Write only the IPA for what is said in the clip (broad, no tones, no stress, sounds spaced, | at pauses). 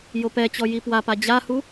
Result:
j o p ɛ t͡ɕ ɔ j i p w a p a d͡ʑ a h u